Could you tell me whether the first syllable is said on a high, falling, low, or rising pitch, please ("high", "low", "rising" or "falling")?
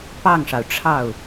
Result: falling